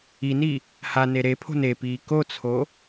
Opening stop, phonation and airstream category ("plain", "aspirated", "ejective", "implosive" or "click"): aspirated